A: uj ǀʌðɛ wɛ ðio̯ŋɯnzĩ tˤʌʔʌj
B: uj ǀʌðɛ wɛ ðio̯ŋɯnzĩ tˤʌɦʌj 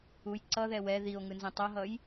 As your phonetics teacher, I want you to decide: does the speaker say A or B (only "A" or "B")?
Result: B